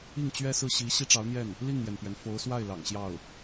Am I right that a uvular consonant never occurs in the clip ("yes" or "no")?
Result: yes